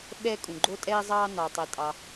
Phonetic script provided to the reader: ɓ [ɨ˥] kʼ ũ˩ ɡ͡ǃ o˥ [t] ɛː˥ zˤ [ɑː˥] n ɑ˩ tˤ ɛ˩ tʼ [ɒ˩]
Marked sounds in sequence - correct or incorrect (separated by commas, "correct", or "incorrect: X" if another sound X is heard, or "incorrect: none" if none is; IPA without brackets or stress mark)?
incorrect: ɛ˥, incorrect: tʼ, correct, incorrect: ɑ˩